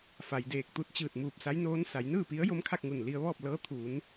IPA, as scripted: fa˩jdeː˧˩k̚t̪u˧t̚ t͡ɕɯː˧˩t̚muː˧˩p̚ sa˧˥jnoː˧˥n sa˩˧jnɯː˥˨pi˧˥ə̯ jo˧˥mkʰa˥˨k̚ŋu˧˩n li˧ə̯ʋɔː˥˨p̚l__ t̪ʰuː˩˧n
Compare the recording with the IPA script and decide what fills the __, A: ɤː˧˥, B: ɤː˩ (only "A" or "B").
A